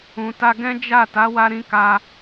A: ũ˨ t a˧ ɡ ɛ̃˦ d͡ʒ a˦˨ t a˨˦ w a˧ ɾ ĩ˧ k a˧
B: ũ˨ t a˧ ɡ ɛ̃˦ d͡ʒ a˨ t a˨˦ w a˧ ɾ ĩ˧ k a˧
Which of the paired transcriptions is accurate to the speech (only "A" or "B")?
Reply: A